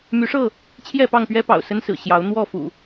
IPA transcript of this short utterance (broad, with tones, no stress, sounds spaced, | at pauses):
m y˨˦ ʂ ɤ˥˨ | t͡ɕʰ j ɛ˥˨ p ɑ˥˨ ŋ p ɥ ɛ˦ p ɑ̰˨˩ ʊ̯ s ə˦ n s ɹ̩˨˩ ɕ j ɑ˨˦ ʊ̯ n̪ w ɔ˥˨ f ṵ˨˩